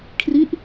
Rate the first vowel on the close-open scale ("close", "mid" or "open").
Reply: close